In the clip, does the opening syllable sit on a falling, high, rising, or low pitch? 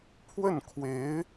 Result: falling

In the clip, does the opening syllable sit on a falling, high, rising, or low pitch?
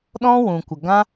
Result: high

